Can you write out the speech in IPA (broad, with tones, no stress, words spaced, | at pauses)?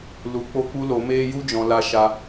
lu˨ k͡po˧k͡pu˧ lo˨˦meː˦ ju˧d͡ʒɔ̃˨ la˧ʃa˧